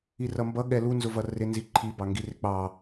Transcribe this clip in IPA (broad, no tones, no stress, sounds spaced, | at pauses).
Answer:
i r ʌ m b ʌ ɠ ɛ l u n z ʊ v ʌ r ɪ n z i ǃʰ i b ɑ ŋ ɡ i r ɪ k͡p ɑ